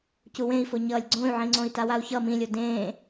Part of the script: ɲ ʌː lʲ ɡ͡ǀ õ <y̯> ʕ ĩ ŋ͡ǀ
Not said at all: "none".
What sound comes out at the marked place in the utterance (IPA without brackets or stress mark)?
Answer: y̯